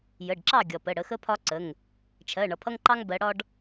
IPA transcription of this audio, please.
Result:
j ə˩˧˩ ɖ ǁ ɑ˥˨ ɡʲ ʌ˩ p ə˩˧˩ ɽ ə˨˦ x ə˥ pʰ ɒ˥ ǀ ə˩˧˩ ŋ | t͡ʃʰ ɜ˩˧˩ ɳ ʌ˩ pʰ ʌ˥ ŋ ǃ ɑ˥ ŋ b ɜ˨˦ ɽ ɒ˥ ɖ

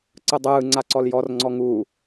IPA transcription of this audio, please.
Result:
ǀ ɯ dˤ ɯː ŋ͡ǀ a ǀ ɔ l j ɔ r ŋ͡ǀ ɔ ŋ uː

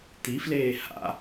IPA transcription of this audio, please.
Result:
t̪ i f l eː h a̰

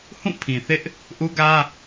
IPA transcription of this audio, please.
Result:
h ũ˦˨ pʰ ĩ˨ θ ɪ˦ ʔ | ʔ u˦ ɡ ä˦

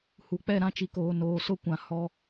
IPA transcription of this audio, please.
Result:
h u˨ k͡p ɛ˦˨ ɾ ã˦ t͡ʃ i˨ k oː˨ n oː˨ s ʊ˦ kʷ ã˨ h ɔ˦

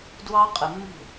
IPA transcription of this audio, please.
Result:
d w ɑ˦ qʼ ə˨ mː ṳ˦˨

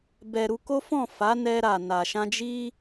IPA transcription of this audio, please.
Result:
b ɛ˨ ɾ u˧ k o˦ f ɔ̃˦˨ f a˨˦ n ɛ˧ ɾ a˨ n a˨ ʃ ã˧ d͡ʒ i˦

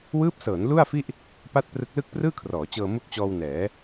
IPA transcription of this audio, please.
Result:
w ɯː˦˥ p̚ s ɤː˩˦ n l u˥˩ a̯ f i˥˩ ʔ | p a˥˩ t̚ p r ɯ˦˥ k̚ l ɯ˥˩ k̚ p r ɯː˥˩ kʰ r ɔː˩˦ t͡ɕ ɤː˧ m u˦˥ k̚ t͡ɕ ɔː˧ w n ɛː˩˦

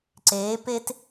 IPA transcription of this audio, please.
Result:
ǀ eː˨˦ p e˦ t

